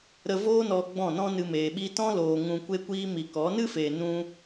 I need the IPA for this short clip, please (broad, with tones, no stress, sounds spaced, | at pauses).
ɾ ə˧ v oː˦ n ɔ˧ ɡ͡b ɔ̃˦˨ n ɔ̃˦ n ɨ˧ m eː˨ ɓ i˧ t ɔ̃˦ l oː˧ ŋ ũ˧ kʷ e˦ kʷ iː˦ m i˨ k ɔ˨˦ n ɨ˦ f eː˨ n ũ˧